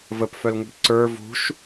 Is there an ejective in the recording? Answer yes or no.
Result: no